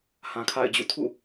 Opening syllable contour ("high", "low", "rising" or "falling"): low